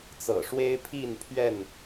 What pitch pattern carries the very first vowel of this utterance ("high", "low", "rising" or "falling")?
low